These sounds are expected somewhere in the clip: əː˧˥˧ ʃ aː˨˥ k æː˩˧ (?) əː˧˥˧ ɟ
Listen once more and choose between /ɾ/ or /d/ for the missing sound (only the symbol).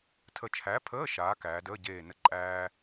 d